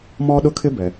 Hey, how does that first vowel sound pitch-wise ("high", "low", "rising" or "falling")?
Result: high